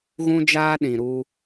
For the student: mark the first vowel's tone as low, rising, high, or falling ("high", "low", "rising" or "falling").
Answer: high